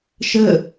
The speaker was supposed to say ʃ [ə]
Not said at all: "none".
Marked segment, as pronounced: ə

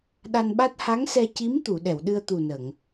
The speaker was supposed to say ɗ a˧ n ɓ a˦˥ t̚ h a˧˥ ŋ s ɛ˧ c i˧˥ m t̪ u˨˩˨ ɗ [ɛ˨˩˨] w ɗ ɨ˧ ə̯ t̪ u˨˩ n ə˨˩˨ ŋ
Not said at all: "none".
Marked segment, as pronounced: ɛ˨˩˨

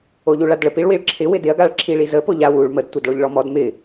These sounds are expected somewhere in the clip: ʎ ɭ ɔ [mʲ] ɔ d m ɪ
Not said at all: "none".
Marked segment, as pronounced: m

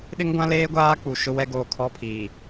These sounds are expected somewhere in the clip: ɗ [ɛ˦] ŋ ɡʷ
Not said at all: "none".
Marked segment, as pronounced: ɪ˦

